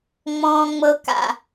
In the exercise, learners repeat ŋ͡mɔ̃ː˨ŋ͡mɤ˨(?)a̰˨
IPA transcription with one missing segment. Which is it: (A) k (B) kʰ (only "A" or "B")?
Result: A